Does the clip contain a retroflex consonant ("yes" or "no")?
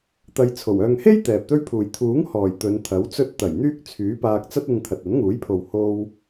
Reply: no